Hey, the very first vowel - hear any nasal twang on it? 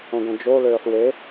yes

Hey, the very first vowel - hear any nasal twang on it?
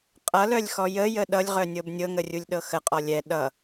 no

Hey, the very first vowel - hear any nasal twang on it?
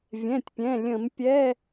yes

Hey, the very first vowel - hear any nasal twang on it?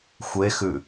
no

